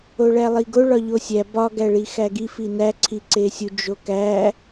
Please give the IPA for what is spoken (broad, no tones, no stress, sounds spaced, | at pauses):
o ɭ æ lˠ i ɡ o ɭ ɒ ʎ o sʲ æ b ɒ ɡ æ ɭ i x æ ɡ i f i n æ ǀʰ i ǀ e sʲ u d͡ʒ o k æ